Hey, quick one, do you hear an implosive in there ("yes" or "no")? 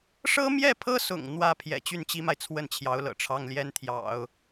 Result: no